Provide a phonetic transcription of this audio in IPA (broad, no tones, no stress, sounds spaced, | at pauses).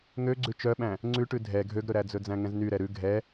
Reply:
ŋ ø ɡ͡ǀ ʉ t͡ʃ œ ɓ æ̃ | ŋ͡ǀ ʉ ʈ ʉ dʱ ɛ ɡʱ ø ɡ ɾ ɵ ɾ æ d͡z ɵ d͡z æ̃ ŋ ɛ̃ z n y ɾ ɛ ɾ ʉ ɡʱ ɛ